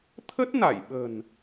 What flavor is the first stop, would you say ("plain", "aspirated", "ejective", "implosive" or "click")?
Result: aspirated